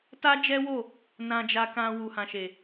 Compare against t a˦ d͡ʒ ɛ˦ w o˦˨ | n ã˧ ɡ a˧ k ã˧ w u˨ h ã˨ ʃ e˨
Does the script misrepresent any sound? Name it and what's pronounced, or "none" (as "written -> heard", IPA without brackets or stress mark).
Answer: ɡ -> d͡ʒ